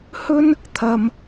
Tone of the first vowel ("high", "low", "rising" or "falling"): high